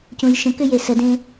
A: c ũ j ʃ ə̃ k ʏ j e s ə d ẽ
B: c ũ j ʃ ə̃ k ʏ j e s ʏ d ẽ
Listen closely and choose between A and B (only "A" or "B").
A